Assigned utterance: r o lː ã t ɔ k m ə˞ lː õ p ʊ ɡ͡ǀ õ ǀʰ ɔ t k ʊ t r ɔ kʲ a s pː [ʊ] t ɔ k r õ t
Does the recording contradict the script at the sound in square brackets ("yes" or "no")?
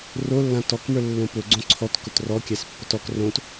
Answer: no